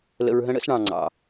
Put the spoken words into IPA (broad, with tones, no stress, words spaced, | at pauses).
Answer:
lə̰˧ɹɦə̃˦ ɽə̰˦sɳɑ̃˨ ŋ͡ǀɑ̰˨